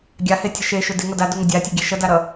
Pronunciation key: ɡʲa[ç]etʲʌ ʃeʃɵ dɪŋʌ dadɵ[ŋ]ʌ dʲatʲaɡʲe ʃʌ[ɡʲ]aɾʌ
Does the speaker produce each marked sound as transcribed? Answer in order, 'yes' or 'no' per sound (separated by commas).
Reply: no, yes, no